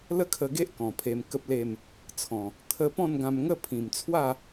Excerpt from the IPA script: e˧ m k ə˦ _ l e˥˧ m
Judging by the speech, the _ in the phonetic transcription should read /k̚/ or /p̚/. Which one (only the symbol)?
p̚